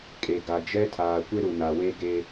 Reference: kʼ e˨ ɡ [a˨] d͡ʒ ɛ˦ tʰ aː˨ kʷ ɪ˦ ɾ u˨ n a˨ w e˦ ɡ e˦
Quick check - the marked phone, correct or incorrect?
correct